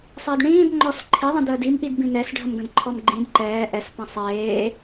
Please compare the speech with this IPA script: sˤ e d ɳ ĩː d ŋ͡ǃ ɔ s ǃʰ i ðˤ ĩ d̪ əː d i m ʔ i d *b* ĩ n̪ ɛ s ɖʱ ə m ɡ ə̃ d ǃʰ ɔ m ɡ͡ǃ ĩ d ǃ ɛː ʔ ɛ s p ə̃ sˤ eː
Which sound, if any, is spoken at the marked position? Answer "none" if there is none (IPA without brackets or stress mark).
b